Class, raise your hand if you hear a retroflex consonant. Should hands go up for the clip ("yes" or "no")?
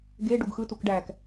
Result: yes